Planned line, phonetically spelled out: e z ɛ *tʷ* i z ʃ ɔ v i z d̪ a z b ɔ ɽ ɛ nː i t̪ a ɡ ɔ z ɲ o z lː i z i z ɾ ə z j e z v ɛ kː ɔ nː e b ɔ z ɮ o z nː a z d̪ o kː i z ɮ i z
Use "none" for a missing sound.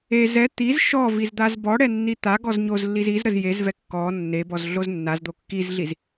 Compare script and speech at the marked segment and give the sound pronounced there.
t̪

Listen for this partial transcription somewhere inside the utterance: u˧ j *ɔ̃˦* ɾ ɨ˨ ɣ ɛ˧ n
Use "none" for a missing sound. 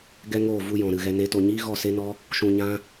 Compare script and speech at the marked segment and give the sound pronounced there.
ɔ̃˨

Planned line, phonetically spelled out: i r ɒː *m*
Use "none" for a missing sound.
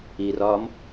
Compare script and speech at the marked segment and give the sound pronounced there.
m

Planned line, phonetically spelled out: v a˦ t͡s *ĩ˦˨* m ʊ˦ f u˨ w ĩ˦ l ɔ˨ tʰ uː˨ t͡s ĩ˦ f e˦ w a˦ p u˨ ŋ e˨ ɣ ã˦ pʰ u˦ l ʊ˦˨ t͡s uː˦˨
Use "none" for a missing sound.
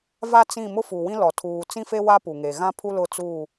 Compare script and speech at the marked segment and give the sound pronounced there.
ĩ˦˨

